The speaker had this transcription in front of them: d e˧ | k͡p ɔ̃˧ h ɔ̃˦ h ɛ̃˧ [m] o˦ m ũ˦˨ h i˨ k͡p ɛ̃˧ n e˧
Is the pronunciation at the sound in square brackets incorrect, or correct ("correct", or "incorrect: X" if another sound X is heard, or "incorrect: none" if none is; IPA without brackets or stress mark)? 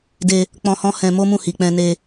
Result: correct